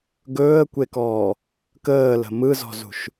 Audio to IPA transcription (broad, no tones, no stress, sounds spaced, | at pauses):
ɡ ɵː ə̯ kʷ e k ɔː | k əː l ə̤ m ɯ z ɔ̤ z ṳ ʃ